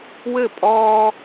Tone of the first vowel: falling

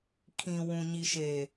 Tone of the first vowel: low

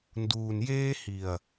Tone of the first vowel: low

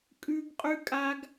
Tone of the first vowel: high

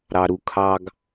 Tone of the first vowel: low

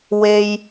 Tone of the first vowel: low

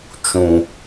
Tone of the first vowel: low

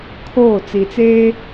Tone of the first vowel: falling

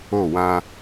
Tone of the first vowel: falling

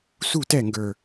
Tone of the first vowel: falling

